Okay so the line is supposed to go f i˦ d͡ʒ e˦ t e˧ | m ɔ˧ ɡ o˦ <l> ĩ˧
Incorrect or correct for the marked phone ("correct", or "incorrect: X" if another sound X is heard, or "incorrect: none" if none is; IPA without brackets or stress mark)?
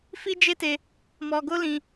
correct